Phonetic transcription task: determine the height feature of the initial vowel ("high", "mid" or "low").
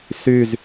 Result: high